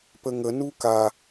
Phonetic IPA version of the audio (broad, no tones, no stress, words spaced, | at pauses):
pəŋə nuka